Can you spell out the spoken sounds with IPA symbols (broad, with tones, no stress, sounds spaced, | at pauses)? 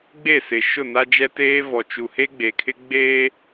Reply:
ɡ͡b e˦˨ s ɪ˨ ʃ ʊ˦˨ n a˦ d͡ʒ ɛ˦ t eː˦ v ɔ˨ t͡ʃ u˨ h e˦ ɡ͡b e˨ kʰ ɪ˦ ɡ͡b eː˦